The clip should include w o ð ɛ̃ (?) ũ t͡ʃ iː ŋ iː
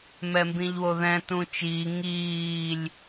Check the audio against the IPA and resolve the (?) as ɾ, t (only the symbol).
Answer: t